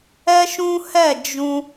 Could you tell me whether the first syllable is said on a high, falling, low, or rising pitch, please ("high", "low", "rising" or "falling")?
high